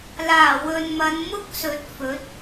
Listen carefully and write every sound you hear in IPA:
l aː˨˩ w ɵ˨ n m ɐ˨˧ n m ʊ˥ k̚ s ɵ˨˥ t̚ f ɵ˨˥ t̚

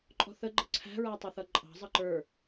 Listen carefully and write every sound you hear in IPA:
ǃʼ ɔ̤ θ ə ɡ͡ǃ ə ǀʰ æ̤ ɹ æ tˤ ɪ θ ʌ ǃʼ ɑ̤ zˤ ʌ ǃ ə˞

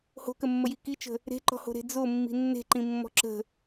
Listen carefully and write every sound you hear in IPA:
h o̤ k ə mː ə j i k i t͡ʃ ə̤ | ɾ e̤ ǃ ɔ̤ h o̤ ɾ e̤ d͡z o mː i̤ nː e̤ ǃ ĩ mː ɔ̤ ǁ ə̤

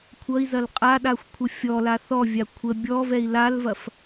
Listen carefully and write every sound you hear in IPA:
kʷʰ ʌ i̯ z ɐ l qʼ a ɗ a xʷ kʷʰ ə fʲ ɔ l a θ ɔ vʲ a kʷʰ ə bʲ ɔ v ɛ i̯ l a l v ɐ f

